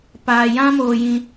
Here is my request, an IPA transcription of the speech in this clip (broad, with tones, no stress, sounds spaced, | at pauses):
p aː˧ j ã˦ m oː˧ j ĩ˧